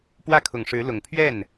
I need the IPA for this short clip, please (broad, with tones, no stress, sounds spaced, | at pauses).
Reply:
p w ä˥˩ kʰ ʊ˨˩ ŋ ʂ ɻ̩˧˥ l ʊ˨˩ ŋ pʰ ɥ ɛ˥˩ n